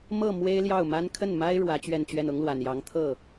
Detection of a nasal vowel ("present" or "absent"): absent